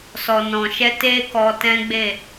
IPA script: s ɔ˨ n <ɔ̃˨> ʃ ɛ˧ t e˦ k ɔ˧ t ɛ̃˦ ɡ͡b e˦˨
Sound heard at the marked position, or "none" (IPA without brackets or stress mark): ɔ̃˨